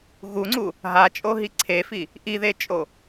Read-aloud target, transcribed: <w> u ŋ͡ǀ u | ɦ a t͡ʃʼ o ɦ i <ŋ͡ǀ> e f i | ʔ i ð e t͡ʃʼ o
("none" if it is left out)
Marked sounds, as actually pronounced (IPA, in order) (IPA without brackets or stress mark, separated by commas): ɣ, ǀʰ